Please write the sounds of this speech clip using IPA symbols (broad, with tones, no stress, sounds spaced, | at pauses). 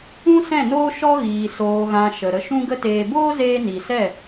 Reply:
ũ˦ s ɛ̃˦˨ n oː˦ ʃ ɔ˦ ɣ iː˨ s oː˨ ɣ ã˨ ʃ ə˨ ɾ ə˧ ʃ ũ˦ ɡ ə˦ t eː˧ b oː˦ z eː˧ n i˨ s ɛ˦˨